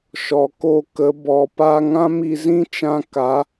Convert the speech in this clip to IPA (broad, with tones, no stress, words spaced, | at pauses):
ʃɔ˨ko˦˨kə˨˦ bɔ˨pa˦ ŋã˦mi˧ zĩ˦t͡ʃã˧ ka˨˦